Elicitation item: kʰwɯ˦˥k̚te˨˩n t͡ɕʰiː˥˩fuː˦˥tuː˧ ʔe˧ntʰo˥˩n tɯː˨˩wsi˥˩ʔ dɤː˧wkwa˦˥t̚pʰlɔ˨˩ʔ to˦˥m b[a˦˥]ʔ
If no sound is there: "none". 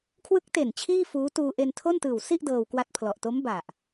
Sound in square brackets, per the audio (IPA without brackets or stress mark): a˨˩